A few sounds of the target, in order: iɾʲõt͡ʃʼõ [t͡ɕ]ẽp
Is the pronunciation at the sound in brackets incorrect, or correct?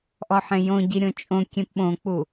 incorrect